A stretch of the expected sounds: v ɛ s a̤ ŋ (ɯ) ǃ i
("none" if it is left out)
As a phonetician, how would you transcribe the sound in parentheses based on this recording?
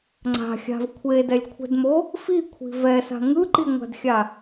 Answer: ɯ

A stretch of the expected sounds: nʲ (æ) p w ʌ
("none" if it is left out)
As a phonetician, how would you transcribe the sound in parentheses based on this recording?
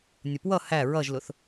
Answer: ə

